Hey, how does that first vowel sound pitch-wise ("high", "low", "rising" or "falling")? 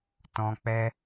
high